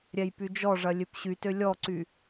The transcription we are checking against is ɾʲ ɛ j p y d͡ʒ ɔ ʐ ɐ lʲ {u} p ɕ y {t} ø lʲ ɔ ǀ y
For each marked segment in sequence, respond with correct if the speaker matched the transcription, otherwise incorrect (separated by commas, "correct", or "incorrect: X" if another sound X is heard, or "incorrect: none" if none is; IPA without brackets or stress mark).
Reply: incorrect: ø, correct